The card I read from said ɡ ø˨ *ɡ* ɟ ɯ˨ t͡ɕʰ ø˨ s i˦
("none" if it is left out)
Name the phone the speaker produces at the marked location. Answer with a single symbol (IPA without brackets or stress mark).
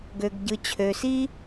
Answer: ɡ